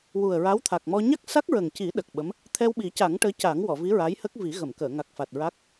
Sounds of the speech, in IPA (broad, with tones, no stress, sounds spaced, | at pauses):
w u˨˩ ə̯ ɹ a˧˥ w t̪ʰ a˨˩ k̚ m ɔ˧ ɲ a˦˥ k̚ s a˦˥ k̚ ɹ ə˨˩ ŋ c i˨˩˦ ɗ ə˨˩ k̚ ɓ ə˧˥ m | t̪ʰ ɛ˧ w ɓ i˨˩˦ c a˨˩˦ ŋ ʈ əː˧˥ c a˨˩˦ ŋ w ɔ˨˩˨ v i˧˥ ɹ a˧˥ j h ə˦˥ k̚ v i˨˩˦ ɣ ə˨˩˨ m k əː˨˩˨ ŋ a˨˩ k̚ f a˨˩ t̚ ɹ a˦˥ k̚